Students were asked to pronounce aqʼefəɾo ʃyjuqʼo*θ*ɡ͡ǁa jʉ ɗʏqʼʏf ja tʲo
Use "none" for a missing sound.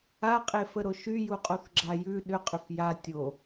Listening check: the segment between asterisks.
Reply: θ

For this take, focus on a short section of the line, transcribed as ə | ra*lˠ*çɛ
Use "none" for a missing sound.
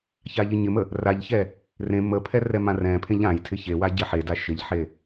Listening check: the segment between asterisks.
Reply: ʎ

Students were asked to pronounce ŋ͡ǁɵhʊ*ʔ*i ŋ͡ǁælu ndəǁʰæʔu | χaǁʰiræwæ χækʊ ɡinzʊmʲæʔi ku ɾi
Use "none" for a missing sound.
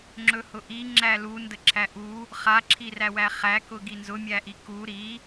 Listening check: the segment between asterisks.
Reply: ʔ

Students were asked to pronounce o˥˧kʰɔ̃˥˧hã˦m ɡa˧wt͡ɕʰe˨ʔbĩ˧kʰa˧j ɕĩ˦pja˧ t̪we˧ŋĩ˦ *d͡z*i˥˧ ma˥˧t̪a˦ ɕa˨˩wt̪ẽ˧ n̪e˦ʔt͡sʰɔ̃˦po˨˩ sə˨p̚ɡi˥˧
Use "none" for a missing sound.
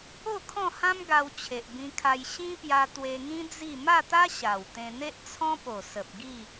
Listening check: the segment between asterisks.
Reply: d͡z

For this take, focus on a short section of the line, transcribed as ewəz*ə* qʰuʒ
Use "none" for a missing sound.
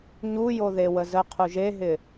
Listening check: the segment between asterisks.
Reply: ə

